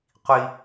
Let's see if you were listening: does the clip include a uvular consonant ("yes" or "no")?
yes